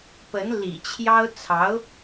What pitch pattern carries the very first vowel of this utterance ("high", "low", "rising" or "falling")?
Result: rising